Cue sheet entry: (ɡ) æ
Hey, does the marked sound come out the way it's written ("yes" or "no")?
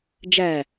no